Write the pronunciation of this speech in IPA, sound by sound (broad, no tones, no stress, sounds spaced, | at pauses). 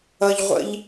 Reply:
ʌ ʎ ʁʷ ə̰ ʎ